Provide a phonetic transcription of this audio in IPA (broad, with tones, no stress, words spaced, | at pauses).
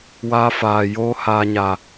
waː˧faː˨joː˧ haː˨ɲa˨